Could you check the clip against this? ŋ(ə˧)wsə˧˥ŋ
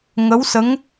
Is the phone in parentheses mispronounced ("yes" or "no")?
yes